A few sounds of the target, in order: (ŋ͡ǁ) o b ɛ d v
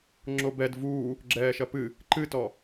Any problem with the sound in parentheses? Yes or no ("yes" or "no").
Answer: no